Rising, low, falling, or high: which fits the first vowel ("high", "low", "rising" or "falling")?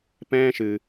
high